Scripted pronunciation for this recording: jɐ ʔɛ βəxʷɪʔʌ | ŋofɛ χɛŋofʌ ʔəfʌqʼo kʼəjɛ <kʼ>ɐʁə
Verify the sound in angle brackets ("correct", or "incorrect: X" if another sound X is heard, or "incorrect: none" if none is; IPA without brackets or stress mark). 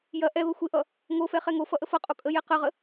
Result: incorrect: q